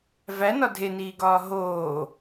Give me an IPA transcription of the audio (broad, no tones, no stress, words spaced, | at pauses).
vænɒ dʱeniːɡɒː ɦoː